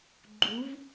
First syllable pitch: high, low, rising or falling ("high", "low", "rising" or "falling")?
rising